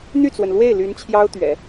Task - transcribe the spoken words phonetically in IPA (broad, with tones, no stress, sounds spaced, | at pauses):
n̪ y˥˩ t͡s w ə˩ n l w e˥˩ ɪ̯ l y˧˥ n t͡ɕʰ j ɑ˥ ʊ̯ t̪ ɥ ɛ̰˨˩˦